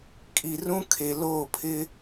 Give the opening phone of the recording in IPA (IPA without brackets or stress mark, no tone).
kʼ